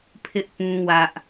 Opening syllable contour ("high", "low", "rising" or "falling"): high